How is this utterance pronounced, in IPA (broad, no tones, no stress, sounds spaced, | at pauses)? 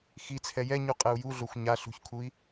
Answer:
x i t͡sʰ ɛ j ɛ ɲ u qʼ ɛ u̯ j u ɮ o xʷ ɲ a ɬ ṳ ç kʰ u i̯